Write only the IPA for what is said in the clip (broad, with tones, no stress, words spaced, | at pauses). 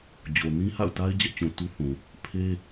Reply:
d͡ʑo˨nĩ˦ha̰˦˨ʊ̯ta˦ɪ̯ d͡ʑɛ˦ʔt͡ɕũ˨tu˦ θũ˨ | pʰe˦